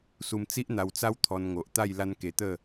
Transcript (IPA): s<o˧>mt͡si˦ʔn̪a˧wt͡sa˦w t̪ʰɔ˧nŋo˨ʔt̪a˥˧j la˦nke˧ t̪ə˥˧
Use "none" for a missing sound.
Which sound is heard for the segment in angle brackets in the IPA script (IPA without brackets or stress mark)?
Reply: u˧